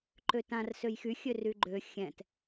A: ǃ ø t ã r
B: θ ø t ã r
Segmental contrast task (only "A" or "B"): A